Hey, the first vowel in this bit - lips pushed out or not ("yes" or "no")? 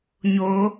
yes